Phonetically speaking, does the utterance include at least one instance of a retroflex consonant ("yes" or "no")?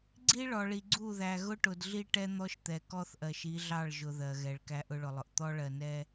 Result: yes